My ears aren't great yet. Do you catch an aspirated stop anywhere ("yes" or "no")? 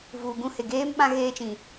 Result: no